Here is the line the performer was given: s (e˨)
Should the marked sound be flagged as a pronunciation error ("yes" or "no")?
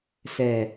yes